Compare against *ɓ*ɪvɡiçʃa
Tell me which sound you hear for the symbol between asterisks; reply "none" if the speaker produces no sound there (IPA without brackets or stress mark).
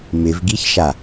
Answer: m